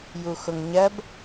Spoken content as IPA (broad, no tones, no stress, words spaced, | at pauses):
juxʊŋɲɜb